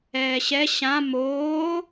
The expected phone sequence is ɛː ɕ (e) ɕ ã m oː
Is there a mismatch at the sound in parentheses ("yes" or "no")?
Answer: yes